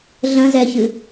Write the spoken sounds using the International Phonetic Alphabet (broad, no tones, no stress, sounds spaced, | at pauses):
ɮ ə̃ z ɛ ç ɨ